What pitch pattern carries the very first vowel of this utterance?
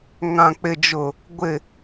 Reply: low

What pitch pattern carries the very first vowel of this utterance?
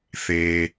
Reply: low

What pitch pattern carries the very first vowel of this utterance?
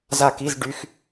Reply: falling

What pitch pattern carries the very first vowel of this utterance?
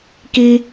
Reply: high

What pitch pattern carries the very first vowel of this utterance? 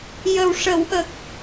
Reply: low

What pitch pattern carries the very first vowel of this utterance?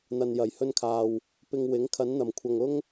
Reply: low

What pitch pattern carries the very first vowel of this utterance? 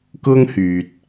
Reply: high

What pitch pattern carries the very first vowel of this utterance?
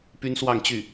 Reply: high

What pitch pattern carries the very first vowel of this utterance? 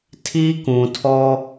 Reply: high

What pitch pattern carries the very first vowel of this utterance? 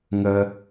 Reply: high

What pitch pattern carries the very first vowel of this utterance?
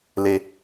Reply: high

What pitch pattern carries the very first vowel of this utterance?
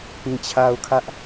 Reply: low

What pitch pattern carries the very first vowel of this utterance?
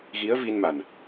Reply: rising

